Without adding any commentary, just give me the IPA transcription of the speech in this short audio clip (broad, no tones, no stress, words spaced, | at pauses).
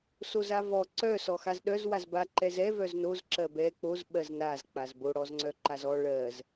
sozavɔ ǀœ sɔxazɗœz wazba ǃɛzɛ vœznoz ǁɜbɛ k͡poz ɓɜznaz k͡pazbo ɽɔzŋ͡ǀœǃazɔ ɭɜz